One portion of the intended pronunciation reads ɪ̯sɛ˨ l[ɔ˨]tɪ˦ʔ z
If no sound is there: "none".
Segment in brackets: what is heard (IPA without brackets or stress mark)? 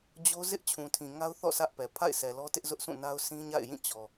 ɔ˦